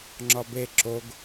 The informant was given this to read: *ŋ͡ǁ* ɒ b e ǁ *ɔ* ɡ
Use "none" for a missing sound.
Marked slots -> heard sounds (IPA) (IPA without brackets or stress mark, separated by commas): ŋ͡ǁ, o